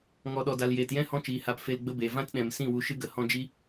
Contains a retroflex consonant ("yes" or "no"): no